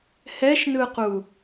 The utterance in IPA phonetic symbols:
hɛʃnɯqu

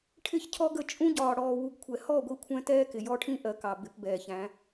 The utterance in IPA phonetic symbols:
ʈʰɪ˦˨çcʰɔ˦ɡə˦˨ t͡ʃʼũ˦ɟɒː˨ ɽɔː˨wu˨ɡkʷʰɛ˨ hɔ˦˨ ɡʷi˦kʷʰɛ̃˦ tɛː˦kɪ˨jɔ˦ʈʰĩ˦ ʔɜ˨kɑ˨ bɪ˨˦pbɛː˨çæ̃˨˦

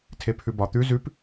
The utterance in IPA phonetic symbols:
tʰepʰʉbɒ t̪ʉ zʉp

